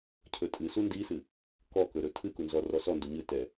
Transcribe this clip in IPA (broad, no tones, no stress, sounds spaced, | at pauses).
cʰ ɵ tʼ ɨ s u n d i s ɨ | k ɔ k ɵ ɾ ɵ tʰ ɨ k u n z ɔ r ɔ s ɔ n d u ɲ ɨ t ɛ